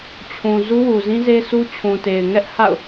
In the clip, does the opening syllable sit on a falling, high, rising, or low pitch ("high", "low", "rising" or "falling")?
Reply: low